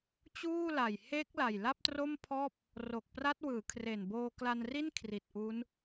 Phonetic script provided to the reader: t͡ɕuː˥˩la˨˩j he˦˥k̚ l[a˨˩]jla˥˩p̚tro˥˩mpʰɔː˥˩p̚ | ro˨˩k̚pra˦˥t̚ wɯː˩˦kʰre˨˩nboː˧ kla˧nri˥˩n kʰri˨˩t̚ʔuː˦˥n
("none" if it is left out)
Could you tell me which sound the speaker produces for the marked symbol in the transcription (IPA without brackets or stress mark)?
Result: a˨˩